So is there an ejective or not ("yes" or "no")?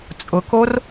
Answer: yes